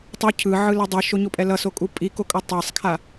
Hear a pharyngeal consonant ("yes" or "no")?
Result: yes